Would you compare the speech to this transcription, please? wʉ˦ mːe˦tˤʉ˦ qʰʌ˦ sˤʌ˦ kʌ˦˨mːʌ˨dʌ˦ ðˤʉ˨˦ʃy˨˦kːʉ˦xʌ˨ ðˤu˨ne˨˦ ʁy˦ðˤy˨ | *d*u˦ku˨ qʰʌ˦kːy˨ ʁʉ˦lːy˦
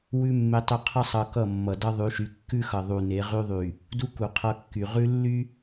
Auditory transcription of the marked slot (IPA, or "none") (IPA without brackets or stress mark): d